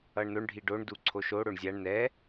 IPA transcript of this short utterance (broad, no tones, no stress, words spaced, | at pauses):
ʌɳnoɳ ɖʱiɖoɳ duǀʰoʃo ɽoɳzʲaɳ nɛ